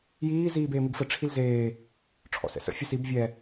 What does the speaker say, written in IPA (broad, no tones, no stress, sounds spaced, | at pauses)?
j iː z iː b eː m i ɡ f ə ʈ͡ʂʰ i l z eː | ʈ͡ʂʰ ɔ̰ s ɛ̰ s ə̰ fʲ ə s i b vʲ ɛ